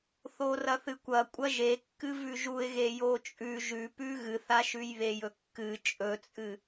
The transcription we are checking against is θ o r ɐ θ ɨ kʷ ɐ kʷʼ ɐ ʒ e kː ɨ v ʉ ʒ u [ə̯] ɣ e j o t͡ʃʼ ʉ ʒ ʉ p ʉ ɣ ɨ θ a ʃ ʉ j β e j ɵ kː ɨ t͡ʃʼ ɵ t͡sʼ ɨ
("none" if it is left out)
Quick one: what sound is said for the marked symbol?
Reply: ɪ̯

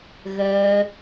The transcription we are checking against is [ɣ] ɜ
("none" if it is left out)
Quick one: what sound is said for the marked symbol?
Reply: ɣ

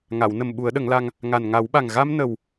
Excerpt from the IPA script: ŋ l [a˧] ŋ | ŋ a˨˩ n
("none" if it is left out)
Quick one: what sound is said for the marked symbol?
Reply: a˧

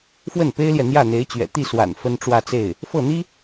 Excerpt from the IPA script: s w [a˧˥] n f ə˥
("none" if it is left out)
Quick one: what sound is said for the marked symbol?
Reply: a̰˨˩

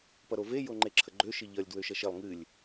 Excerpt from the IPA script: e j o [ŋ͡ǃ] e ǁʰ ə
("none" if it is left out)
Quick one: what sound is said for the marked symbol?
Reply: ŋ͡ǃ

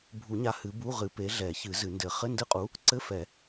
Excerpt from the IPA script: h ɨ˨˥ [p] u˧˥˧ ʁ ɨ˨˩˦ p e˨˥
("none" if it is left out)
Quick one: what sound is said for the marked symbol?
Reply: b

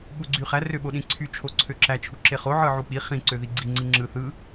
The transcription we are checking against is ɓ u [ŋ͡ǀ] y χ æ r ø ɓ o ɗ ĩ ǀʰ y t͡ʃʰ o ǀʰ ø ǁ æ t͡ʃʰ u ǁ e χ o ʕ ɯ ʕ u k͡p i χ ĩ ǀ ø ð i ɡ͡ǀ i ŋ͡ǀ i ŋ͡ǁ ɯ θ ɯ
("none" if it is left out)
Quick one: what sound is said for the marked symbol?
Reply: ɡ͡ǀ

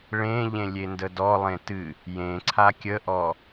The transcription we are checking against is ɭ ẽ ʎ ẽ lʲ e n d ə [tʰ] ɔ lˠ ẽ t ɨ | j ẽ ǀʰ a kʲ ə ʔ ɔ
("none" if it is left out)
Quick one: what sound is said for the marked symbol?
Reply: d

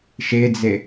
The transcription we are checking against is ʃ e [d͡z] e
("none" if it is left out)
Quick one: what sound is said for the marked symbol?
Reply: d͡z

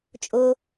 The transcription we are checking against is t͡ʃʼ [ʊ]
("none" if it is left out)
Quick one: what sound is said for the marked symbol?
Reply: ʊ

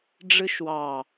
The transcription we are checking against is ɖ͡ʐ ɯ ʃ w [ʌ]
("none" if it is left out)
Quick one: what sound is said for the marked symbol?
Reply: ɑ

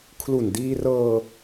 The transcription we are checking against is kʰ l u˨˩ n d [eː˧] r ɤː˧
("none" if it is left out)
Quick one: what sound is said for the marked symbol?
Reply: iː˧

